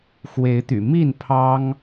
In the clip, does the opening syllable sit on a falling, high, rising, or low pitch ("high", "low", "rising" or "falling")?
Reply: rising